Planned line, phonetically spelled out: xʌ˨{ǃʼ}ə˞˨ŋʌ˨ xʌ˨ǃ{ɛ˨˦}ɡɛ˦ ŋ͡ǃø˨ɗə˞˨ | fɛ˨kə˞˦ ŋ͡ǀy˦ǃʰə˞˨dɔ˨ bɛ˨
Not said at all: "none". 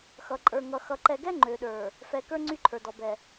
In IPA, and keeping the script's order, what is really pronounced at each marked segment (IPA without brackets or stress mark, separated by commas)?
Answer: ǃʼ, ɛ˨